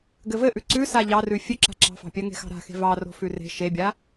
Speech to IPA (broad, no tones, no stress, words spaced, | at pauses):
ɡɘvɘʔʉ ǀʉsa ʎɑrʉ fʲʉǁa̤ ǁɑ̤fɑ̤pʲɜ ŋe̤xɑ̤ɾa̤xe̤ vɑro̤fʉ re̤ ʃebʲa